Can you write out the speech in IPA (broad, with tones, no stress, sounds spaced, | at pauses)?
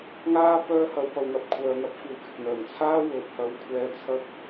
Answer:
ŋ aː˥ p œː˥ h ɐ˧ w p ɐ˨ w ŋ ɐ˨ p̚ kʷʰ œː˨ ŋ ɐ˥ p̚ f uː˨ k ɪ˨ k̚ ŋ œː˨˩ ŋ t͡sʰ aː˥ w ɵ˨ t̚ h ɐ˧ w kʷʰ ɛː˧ t͡sʰ ɐ˥ k̚